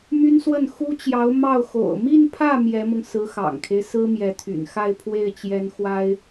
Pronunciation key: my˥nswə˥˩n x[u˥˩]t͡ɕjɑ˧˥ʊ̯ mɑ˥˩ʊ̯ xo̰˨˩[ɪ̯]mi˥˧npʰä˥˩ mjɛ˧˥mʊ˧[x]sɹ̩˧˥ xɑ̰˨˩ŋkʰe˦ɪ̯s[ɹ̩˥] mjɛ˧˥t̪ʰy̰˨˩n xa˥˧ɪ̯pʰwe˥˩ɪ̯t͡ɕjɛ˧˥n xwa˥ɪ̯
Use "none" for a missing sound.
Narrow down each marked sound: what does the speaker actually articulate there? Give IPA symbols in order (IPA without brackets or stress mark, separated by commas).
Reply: u˥, ʊ̯, ŋ, ɹ̩˥